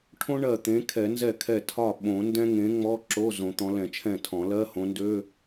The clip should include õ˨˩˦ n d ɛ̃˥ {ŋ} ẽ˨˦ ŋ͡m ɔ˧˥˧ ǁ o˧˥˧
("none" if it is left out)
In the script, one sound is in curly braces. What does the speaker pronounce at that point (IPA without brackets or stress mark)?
ŋ